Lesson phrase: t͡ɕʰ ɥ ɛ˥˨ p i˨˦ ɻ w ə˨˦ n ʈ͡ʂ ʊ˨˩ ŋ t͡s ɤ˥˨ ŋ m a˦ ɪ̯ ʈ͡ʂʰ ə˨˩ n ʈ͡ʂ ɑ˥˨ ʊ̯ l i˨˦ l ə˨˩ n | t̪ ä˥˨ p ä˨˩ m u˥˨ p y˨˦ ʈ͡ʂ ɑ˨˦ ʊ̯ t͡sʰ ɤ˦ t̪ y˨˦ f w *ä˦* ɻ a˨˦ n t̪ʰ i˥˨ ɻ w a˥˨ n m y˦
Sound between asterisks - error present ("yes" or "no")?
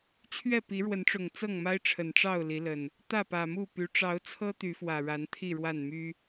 yes